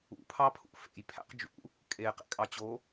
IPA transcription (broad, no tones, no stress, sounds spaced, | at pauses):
ṵ pʰ ɑ pʰ ṵ f ḛ j pʰ æ̰ q d͡ʒ ṵ | kʼ e q ḛ kʼ ɑ t͡ɕ o